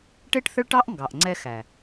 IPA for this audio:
ʈ e˦ ʈ θ ə˦ ɭ ʈ ɑ˦ ʔ ŋ ɡ ɑ˨ ʔ ŋ͡ǀ ɛ˦ x æ˨

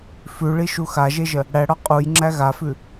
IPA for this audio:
f ʉ ɭ i ʃ u x a ʒ e ʒ ə | ɽ æ ɽ ɒ qʼ u j ŋ͡ǁ æ ɣ a f ʉ

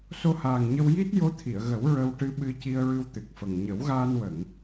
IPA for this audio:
s o˧ h aː˨˩ ŋ ɲ ə˧ w j i˦˥ t̚ j o˧˥ t̪ʰ i˨˩˨ ə̯ ɣ ə˨˩˦ w ɹ ə˧ w ʈ ɨ˧˥ ɓ ɨ˧ c i˧ ə̯ ɹ ɨ˧ w t̪ ɨ˨˩ k̚ f ə˨˩ ŋ ɲ ə˨˩˦ w ɣ aː˧ n w ə˨˩˨ ŋ

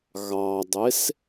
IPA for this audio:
ɣ ɑ dˤ e s

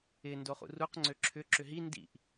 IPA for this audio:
ɪ n d o χ ṵ r u q ŋ͡ǀ ø ǁʰ ʏ ǁ ʏ ɦ i n d ḭ ʔ

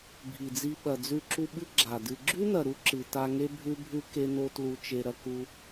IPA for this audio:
bʱ i˨ d͡z i˧ ɓ ɐ˨ d͡z ʉ˧ ǁ u˧ ɓ ɨ˦ ɡ͡ǁ a˨ d ɨ˨ ɡ͡ǁ ʉ˦ n ɐ˨ ɾ u˦ ǁ ɨ˨ t a˧ ŋ e˦ bʱ ʉ˦ bʱ ʉ˦ k e˦ n o˦ t l u˧ t͡ʃ e˧ ɾ ɐ˧ k u˧

